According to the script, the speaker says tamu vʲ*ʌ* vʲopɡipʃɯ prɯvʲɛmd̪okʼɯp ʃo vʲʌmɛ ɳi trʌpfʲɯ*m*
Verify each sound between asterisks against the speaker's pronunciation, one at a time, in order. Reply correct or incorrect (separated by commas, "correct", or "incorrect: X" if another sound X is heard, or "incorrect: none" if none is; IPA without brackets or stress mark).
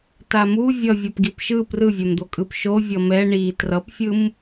correct, correct